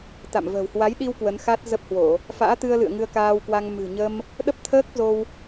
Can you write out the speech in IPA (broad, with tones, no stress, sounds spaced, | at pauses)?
t̪ a̰˧˨ m v ə̤ː˨˩ w h w a˨˦ j ɗ i˧ w k w ə˨˦ n x a˦˥ t̚ z ə˦˥ p̚ h w o˧˩˨ | f a̰ː˧˥ t̪ ɨ˧ ə̯ l ɨ̰˧˨ ə̯ ŋ ɨ˧ ə̯ k aː˧ w k w a˧ ŋ m ɨ̤˨˩ ɲ ə˧ m | ɗ ə˦˥ p̚ t̪ʰ əː˦˥ k̚ z o˧ w